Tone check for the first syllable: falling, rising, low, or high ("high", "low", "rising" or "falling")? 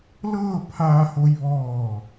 falling